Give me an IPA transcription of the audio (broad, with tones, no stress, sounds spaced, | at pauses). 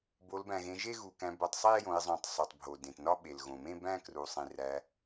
b o˩˧ l b æ̃˩ ɣ ẽ˩˧ ʒ e˥˧ ɣ u˩ k æ̃˩˧ b o˩˧ tˤ sˤ i˥˧ e̯ j õ˩˧ e̯ zˤ õ˩ tˤ sˤ u˩ tˤ bʱ o˩ d ẽ˩ t n ɒ˥˧ ɓ e˩ l ɣ õ˩ m ẽ˥˧ b æ̃˥˧ k r u˩ sˤ ĩ˩ r æ˩˧